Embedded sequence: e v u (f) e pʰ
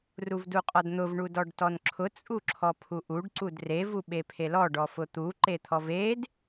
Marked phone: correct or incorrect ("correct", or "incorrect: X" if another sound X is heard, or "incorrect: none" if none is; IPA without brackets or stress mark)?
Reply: incorrect: ɓ